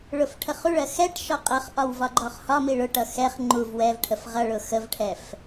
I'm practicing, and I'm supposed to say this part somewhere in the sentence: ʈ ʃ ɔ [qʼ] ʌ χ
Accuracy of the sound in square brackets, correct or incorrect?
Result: correct